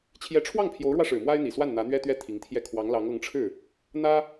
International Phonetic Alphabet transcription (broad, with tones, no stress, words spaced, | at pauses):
t͡ɕʰjɛ˧˥ʈ͡ʂʰwɑ˥˩ŋpʰjo˧˥ʊ̯ɻwä˧ ʂɻ̩˨˩mwa˥ɪ̯n̪i˨˩swa˥˩n n̪ä˧˥n̪ɥɛ˥t̪ɥɛ˥˩ t̪ʰi˧˥ŋt̪ʰjɛ˥˩ kʰwɑ˧˥ŋ lɑ˧˥ŋɤ˧˥ŋʈ͡ʂʰɻ̩˥˩ | n̪ä˥